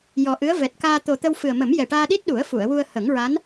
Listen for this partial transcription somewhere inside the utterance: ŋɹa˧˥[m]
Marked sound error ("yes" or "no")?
yes